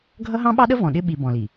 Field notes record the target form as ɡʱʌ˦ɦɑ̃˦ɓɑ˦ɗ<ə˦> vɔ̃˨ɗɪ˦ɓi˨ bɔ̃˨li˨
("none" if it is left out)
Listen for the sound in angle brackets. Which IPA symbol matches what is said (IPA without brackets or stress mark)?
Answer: ə˦